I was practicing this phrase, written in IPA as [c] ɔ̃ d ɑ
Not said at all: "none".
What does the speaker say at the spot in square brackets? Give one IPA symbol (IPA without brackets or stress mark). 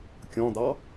kʲ